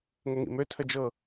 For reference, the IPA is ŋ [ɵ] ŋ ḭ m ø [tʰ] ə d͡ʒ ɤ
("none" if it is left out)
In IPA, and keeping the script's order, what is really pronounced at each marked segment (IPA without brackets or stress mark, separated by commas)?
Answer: ə, tʰ